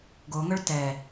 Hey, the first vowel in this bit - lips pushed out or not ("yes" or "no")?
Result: yes